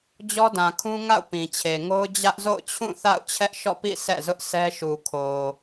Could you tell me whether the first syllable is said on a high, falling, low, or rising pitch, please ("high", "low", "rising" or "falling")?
high